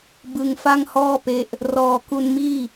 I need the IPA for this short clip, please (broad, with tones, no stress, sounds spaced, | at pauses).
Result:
b ɯ˧ ŋ f a˥˩ ŋ h ɔː˥˩ p e˦˥ ʔ | r ɔː˨˩ k u˧ n m iː˥˩